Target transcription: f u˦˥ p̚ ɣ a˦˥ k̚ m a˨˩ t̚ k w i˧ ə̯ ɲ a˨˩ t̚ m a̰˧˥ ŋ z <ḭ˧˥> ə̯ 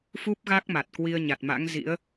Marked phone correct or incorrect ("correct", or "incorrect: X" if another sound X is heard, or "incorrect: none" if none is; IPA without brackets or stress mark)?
correct